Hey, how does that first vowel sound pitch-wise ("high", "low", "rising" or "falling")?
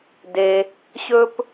low